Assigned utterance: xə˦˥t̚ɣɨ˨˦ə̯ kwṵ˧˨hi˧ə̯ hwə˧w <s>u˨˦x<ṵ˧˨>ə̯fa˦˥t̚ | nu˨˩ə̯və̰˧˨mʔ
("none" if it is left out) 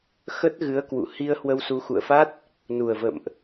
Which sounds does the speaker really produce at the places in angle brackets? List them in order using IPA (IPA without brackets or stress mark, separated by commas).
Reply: s, ṵ˧˨